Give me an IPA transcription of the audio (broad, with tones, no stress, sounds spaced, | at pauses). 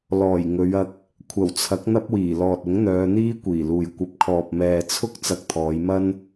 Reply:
l ɔː˨˩ j ŋ ɵ˨˧ ɥ ɐ˧ k̚ | kʷʰ ɐ˨˩ w t͡sʰ ɐ˨˥ k̚ n̪ ɐ˥ p̚ w iː˨˩ l ɔː˨ t̚ ʊ˨˥ ŋ n̪ œː˨˧ n̪ iː˥ kʷ iː˨˩ l uː˨ j kʷ ɐ˨˥ p̚ kʰ ɔː˨ p̚ m ɛː˨ t͡sʰ ʊ˥ k̚ t͡s ɐ˧ k̚ t̪ʰ ɔː˨˧ j m ɐ˥ n